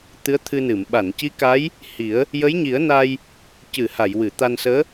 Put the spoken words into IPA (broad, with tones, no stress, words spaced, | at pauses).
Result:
t̪ɨ˧˥ə̯t̪ʰɨ˧nɨ˨˩˨m ɓa˨˩˨nci˧˥ ka˧˥j | hi˨˩˦ə̯ | jə˧˥jɲi˨˩˦ə̯na˧j | cɨ˨˩˨ ha˨˩˨jwɨ˨˩˨t̪a˧nsəː˧˥